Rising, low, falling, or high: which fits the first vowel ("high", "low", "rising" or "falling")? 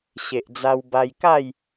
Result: low